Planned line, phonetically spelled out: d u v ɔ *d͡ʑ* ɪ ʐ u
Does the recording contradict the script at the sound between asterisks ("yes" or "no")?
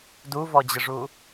no